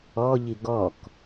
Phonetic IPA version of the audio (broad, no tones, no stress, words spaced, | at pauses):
ɔʎi ɡɔk